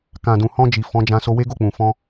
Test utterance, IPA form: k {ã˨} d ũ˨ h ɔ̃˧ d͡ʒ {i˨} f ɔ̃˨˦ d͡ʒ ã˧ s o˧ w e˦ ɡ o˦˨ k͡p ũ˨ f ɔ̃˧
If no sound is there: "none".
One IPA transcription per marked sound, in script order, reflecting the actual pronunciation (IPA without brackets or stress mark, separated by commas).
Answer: ã˨, i˨